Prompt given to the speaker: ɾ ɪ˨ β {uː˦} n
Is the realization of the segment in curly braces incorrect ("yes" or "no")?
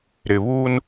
no